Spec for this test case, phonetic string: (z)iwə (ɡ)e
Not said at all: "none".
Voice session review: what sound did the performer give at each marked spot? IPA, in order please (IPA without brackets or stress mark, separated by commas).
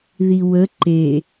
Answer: ð, ǃ